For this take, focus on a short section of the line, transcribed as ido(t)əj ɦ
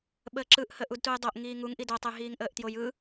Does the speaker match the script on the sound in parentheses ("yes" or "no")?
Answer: no